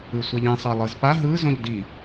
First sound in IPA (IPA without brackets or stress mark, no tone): ɯ